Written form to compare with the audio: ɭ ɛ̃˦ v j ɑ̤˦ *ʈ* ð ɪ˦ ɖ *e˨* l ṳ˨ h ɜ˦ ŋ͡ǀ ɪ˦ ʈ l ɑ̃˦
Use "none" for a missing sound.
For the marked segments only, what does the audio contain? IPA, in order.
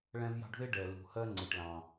ɖ, ɛ˨

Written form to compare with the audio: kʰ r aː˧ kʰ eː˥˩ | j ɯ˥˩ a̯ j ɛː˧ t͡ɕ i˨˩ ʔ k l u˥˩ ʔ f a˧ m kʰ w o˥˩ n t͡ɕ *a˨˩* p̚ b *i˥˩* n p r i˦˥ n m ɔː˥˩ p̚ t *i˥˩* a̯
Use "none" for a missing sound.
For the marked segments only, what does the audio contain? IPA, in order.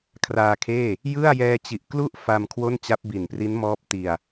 a˦˥, i˨˩, i˨˩

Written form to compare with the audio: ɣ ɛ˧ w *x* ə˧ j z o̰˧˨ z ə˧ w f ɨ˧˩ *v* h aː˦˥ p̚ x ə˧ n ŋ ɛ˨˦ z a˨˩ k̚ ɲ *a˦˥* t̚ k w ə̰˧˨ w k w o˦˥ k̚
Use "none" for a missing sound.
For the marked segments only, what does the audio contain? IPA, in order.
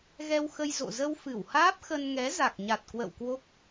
x, w, a˨˩

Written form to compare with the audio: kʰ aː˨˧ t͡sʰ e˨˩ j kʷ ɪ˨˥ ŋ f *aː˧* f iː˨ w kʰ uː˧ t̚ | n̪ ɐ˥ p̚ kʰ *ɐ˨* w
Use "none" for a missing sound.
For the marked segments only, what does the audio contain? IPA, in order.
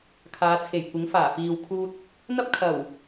aː˨˩, ɐ˨˩

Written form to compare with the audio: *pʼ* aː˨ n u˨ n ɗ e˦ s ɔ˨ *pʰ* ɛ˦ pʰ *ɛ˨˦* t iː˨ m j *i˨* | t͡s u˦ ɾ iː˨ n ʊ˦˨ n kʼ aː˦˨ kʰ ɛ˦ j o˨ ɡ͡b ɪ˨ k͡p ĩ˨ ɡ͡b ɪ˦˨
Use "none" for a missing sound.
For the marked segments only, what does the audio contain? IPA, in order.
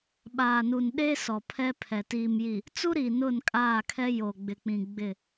ɓ, pʰ, ɛ˨, i˨

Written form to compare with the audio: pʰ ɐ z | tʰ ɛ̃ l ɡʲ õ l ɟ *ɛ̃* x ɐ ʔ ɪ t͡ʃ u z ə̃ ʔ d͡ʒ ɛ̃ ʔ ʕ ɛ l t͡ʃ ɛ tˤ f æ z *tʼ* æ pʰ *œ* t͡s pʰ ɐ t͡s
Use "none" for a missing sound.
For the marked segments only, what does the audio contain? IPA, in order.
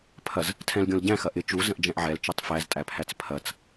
æ̃, tʼ, æ

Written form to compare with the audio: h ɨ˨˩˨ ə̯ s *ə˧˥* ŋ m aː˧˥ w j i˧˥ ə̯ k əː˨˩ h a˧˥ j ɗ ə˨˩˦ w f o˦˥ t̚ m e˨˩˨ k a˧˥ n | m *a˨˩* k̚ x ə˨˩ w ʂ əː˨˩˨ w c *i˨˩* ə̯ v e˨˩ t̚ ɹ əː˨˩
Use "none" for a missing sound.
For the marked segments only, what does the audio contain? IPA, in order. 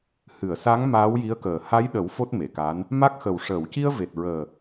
a˧˥, a˦˥, i˧

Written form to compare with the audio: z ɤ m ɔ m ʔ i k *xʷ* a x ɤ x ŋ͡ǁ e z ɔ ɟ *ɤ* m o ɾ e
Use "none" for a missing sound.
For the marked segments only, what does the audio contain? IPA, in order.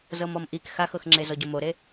x, o

